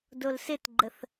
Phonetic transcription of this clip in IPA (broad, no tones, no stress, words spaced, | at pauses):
dolsɪtɡ͡ǃəθ